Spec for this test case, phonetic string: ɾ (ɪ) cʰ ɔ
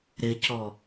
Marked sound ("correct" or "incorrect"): correct